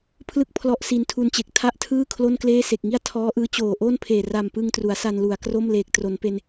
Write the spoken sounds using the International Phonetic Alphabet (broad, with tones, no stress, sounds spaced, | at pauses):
pʰ l ɯ˥˩ k̚ pʰ l ɔ˦˥ ʔ s i˧ n tʰ u˧ n t͡ɕ e˨˩ k̚ tʰ a˥˩ ʔ tʰ ɯː˥˩ kʰ l o˥˩ n k l eː˥˩ s e˨˩ k̚ ŋ i˥˩ a̯ tʰ ɔː˦˥ ʔ ɯː˦˥ t͡ɕ oː˨˩ ʔ oː˥˩ n pʰ eː˨˩ r a˨˩ m p ɯ˧ ŋ t r u˩˦ a̯ s a˧ n l u˩˦ a̯ k r o˥˩ m l eː˨˩ k̚ t r o˩˦ n p e˧ n